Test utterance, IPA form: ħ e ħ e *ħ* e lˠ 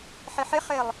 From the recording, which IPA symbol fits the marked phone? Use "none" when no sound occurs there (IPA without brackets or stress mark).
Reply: χ